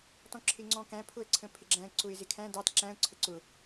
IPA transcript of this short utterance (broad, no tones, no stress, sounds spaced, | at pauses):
t ɔ̃ ǁʰ ɪ ŋ͡ǀ ɔ̃ k æ̃ pʰ ʊ ə̯ ǀʰ ə̃ pʰ ɪ ɡ͡ǁ æ̃ ə̯ ǀ ʊ ɪ̯ z ɪ kʰ æ̃ d ɑ t ǁ æ̃ ʊ̯ ǀʰ ə ǀ ʊ